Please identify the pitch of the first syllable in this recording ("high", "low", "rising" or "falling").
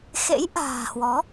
rising